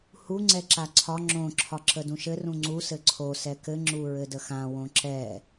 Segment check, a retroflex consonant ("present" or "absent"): absent